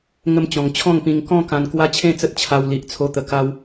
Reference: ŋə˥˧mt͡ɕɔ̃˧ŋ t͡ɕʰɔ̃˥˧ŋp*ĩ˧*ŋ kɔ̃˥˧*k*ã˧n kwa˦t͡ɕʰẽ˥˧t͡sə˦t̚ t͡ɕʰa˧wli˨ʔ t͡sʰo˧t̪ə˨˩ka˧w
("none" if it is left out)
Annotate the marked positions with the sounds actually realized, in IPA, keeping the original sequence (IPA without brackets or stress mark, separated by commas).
ĩ˧, k